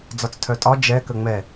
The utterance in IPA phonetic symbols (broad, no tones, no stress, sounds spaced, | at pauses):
d͡z ɒ t͡s tʰ œ tʼ ɒ d͡ʒ ɛ k ə ŋ͡m ɛ